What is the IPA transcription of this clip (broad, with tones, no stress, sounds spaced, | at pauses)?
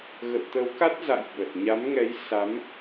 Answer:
ɣ ə̰˧˨ w t̪ ə˨˦ w k a˦˥ t̚ z a̰˧˨ j ɓ ə˨˩ t̚ ɲ a˨˦ m ŋ ɛ˨˦ j s a˨˦ m